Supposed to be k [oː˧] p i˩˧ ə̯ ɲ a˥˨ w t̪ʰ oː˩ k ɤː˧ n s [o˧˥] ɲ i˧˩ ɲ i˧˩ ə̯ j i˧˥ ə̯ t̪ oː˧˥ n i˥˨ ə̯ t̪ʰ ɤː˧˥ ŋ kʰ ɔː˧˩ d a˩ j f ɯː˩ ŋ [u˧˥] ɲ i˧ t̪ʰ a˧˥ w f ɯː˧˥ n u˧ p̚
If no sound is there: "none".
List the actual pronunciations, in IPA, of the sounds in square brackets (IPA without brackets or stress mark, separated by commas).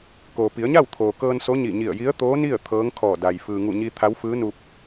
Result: oː˩, o˧˥, u˧˩